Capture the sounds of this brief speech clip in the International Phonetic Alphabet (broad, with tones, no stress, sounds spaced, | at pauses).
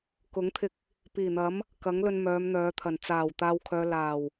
k ʊ˨˥ ŋ t̪ʰ ɪ˧ k̚ | p iː˨˩ n̪ ɐ˨˥ m | k ɐ˨˥ ŋ l ɵ˧ n m œː˨˧ m n̪ œː˨˧ t̪ʰ ɐ˨˩ n t͡s aː˨˩ w t̪ aː˨ w kʰ œː˨ l aː˨˩ w